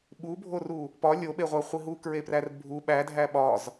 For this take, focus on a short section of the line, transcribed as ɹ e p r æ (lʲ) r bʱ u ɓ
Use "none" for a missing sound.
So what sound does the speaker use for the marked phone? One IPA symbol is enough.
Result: none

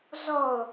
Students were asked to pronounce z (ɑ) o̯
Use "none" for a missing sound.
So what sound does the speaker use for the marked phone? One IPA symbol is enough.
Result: ɔ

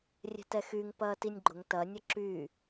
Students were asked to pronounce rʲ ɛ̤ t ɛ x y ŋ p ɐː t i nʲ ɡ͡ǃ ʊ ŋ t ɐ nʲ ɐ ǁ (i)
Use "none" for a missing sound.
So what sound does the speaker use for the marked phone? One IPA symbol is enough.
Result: y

